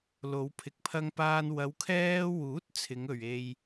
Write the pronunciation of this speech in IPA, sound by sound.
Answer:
l o˨˧ w pʰ ɪ˨˥ k̚ pʰ ɐ˧ ŋ p aː˧ n w ɐ˨˧ w kʰ ɛː˧ w uː˨˥ t̚ t͡sʰ ɪ˨˧ ŋ ɵ˨ ɥ e˧ j

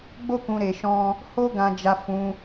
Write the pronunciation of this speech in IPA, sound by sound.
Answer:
ɡ͡b o˦ k ũ˧ ɾ e˧ ʃ ɔ̃˦ | h o˦ ɡ ã˧ d͡ʒ a˧ f ũ˧

